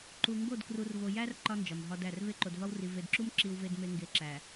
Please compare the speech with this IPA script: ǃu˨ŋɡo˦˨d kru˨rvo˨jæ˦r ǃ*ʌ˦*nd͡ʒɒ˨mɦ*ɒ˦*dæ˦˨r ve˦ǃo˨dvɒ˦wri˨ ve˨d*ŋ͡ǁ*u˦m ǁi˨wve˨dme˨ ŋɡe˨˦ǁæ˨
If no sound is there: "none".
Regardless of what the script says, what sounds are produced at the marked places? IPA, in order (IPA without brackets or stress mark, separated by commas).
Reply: ɒ˦, ɒ˦, ǁ